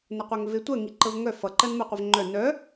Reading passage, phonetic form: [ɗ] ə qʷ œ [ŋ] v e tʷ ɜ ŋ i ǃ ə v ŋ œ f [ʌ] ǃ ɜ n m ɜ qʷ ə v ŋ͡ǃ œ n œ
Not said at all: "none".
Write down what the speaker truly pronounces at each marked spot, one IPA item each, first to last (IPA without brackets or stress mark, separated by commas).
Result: n, ŋ, ʌ